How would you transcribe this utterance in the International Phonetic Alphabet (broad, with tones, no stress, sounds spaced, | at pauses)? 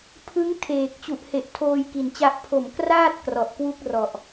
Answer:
pʰ ɯ˦˥ ŋ tʰ eː˨˩ k̚ t͡ɕ u˨˩ ʔ h e˨˩ ʔ tʰ oː˧ j k i˨˩ n t͡ɕ a˦˥ ʔ pʰ o˨˩ m k r aː˥˩ t̚ k r ɔ˨˩ ʔ k w u˥˩ k̚ r ɔ˨˩ ʔ